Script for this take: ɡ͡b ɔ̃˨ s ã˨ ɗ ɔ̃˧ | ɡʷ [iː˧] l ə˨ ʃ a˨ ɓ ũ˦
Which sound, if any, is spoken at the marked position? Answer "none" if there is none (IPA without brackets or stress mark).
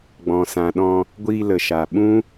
iː˧